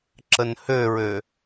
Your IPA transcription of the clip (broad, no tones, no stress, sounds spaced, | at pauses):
ǁ ə n h ø ɹ ø